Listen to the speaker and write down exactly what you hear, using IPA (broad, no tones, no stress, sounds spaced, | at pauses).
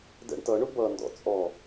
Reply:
d ɛ̰ ɳ t ʌ ɳ ʊ b ʌ n d ɔ̰ t͡sʼ ɔ